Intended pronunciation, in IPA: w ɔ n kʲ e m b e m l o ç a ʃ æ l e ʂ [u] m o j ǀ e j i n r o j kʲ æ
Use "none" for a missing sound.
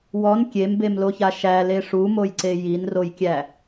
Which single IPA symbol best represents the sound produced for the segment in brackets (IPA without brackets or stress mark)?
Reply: u